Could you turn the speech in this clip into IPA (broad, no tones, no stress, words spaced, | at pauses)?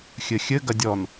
xʲɘxʲɘ ɡɐdʲɔn